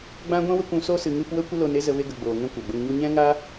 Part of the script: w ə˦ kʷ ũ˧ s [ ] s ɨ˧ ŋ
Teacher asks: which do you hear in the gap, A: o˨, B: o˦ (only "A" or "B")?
B